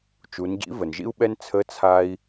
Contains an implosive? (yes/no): yes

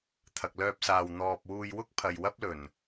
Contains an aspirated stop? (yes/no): yes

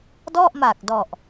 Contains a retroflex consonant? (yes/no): no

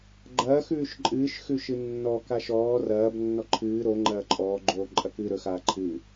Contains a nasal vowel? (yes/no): no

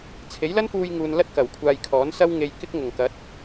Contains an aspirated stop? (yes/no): yes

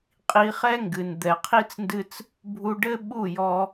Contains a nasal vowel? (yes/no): no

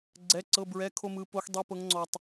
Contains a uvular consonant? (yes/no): no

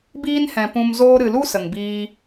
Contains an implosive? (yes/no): no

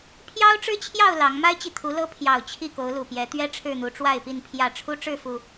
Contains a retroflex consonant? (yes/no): yes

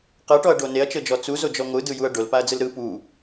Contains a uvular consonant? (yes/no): yes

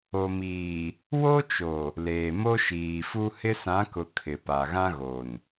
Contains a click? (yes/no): no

